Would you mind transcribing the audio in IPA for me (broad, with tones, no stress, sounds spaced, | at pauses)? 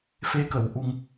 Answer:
f e˧ k ə˨˩˨ w ʔ u˧ ŋ